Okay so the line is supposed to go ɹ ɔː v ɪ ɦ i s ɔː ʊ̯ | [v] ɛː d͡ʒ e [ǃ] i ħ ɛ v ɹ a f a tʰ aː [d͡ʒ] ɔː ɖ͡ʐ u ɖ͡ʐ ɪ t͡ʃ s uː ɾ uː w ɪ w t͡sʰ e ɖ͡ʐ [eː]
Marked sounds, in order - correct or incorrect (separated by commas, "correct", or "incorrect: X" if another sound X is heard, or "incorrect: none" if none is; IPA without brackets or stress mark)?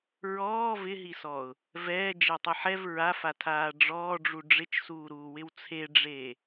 correct, incorrect: tˤ, incorrect: ɖ͡ʐ, correct